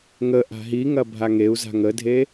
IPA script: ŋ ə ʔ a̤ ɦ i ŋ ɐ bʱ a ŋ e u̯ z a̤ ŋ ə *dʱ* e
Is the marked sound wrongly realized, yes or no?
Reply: no